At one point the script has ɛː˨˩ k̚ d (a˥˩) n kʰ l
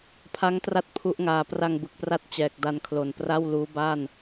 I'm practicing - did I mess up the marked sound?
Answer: yes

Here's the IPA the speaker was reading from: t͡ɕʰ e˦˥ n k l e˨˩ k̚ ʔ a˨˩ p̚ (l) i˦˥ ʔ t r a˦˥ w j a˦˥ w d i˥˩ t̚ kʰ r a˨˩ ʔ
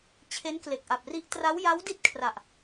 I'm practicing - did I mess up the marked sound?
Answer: yes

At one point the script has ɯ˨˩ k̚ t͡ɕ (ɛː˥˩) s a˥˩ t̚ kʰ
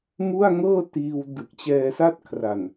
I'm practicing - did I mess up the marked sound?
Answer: yes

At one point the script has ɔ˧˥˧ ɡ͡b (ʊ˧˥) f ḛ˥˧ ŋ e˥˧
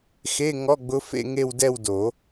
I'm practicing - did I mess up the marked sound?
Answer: no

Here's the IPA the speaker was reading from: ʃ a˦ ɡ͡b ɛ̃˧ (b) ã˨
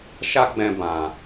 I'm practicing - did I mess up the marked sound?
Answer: no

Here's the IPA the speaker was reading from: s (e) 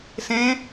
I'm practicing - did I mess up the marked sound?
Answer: yes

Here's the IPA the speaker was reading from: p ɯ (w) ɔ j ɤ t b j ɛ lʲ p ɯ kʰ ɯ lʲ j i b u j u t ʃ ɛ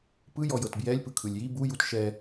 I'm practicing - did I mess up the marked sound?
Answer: yes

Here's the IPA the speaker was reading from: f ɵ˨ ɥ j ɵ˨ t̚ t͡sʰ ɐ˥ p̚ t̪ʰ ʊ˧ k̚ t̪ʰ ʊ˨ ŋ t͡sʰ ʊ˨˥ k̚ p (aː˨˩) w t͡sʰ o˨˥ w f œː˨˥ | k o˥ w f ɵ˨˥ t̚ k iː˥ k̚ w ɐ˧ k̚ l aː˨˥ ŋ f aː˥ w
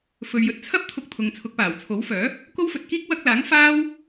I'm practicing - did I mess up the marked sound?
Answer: no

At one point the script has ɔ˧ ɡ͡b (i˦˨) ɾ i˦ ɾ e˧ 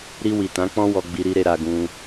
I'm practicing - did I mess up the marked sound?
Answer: yes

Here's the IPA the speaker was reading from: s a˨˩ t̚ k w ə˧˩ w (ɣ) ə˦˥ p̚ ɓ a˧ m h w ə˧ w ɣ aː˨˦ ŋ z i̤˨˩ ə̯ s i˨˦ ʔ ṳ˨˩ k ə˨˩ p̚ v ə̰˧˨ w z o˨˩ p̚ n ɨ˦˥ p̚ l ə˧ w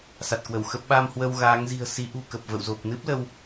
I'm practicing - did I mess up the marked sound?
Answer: yes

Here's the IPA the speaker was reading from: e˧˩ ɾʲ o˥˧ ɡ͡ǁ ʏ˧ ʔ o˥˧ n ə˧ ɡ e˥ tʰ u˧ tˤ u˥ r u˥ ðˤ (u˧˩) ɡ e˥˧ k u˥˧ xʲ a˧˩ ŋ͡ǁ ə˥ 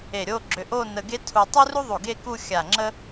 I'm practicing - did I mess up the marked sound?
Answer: no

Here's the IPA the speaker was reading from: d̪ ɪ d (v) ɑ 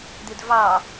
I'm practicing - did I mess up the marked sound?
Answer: no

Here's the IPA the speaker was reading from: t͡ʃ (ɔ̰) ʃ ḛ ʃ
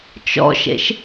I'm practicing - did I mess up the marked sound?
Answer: no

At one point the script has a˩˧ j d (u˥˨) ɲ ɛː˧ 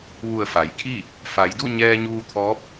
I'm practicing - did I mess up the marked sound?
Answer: no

